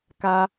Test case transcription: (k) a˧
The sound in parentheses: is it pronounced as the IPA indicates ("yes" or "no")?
yes